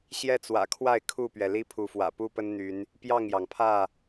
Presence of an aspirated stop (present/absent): present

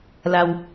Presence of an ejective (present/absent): absent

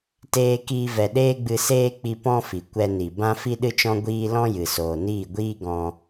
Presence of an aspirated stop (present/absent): absent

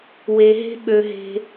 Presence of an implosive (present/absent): present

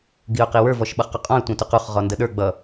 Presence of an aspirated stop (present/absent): absent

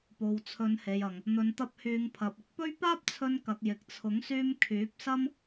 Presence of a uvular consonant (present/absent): absent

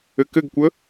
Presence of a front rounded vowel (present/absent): absent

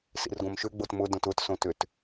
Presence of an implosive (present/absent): absent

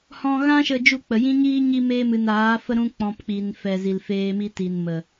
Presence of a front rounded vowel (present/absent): absent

